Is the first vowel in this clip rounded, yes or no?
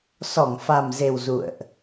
yes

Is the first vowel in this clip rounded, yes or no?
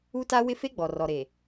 yes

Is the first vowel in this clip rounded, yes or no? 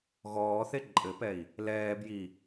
yes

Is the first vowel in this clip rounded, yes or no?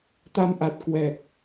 no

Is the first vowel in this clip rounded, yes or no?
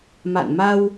no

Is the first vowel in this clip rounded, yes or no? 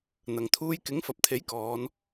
no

